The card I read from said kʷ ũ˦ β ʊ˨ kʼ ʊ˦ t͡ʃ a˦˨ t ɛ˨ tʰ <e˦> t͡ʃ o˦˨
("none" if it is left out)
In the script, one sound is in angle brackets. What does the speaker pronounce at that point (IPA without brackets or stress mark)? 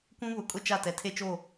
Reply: e˦